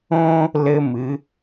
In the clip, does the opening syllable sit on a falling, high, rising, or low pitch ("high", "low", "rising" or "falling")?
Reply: high